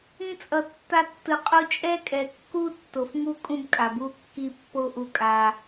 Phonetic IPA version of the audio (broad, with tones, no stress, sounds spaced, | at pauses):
ĩ˧ t͡sʼ ʌ˨ tː a˧ tː ɯ˨ qʼ u˧ t͡ʃʼ ɛ˦ kʼ ɛ˨ kː u˦ tː o˨ f ŋ u˧ kʼ ũ˧ b kʼ a˨ b u˦˨ kː i˦˨ pː o˦ ʔ u˧ kʼ a˧